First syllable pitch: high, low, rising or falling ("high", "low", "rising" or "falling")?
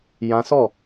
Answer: high